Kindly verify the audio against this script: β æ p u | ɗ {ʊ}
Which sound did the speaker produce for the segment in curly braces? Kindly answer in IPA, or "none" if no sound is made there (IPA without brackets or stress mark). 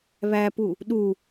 u